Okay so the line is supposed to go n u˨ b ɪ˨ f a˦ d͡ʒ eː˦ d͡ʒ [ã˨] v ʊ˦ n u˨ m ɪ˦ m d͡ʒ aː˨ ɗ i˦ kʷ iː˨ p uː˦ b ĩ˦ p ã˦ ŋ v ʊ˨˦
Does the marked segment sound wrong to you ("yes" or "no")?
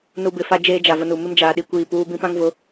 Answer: yes